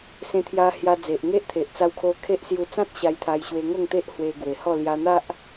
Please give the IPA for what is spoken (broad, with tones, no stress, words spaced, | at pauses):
sẽ˧t̪ʰja˧ hja˧d͡ze˨ʔ ŋe˦ʔt̪ʰe˨ʔ t͡sa˧wkʰo˧ kʰe˦ʔsju˧ t͡sã˦t̚ ɕa˧jt̪ʰa˧jɕwe˧ ŋo˥˧ŋt̪e˦ʔ hwe˧ɡwe˨˩hɔ˥˧ lja˧n̪a˦ʔ